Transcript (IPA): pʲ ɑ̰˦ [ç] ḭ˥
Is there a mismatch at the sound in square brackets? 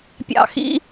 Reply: yes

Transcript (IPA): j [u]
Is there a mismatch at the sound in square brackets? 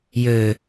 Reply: yes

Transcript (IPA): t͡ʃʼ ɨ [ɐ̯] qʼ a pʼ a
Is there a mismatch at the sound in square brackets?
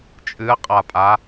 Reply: no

